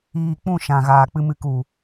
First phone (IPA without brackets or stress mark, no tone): iː